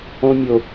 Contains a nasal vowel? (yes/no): yes